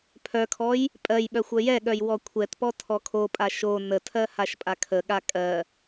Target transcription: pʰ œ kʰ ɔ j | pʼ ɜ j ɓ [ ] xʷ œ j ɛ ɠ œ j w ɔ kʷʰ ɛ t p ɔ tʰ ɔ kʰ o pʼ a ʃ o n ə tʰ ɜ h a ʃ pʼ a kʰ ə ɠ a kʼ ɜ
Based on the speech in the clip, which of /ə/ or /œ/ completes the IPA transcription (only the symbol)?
œ